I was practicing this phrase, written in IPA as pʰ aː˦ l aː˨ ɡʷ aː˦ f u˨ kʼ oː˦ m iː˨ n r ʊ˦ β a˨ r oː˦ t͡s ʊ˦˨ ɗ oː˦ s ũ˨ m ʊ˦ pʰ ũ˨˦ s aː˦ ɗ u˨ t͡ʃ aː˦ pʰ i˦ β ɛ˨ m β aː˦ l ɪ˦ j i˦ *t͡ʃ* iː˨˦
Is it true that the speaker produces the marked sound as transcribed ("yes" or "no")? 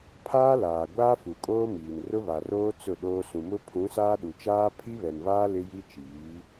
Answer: yes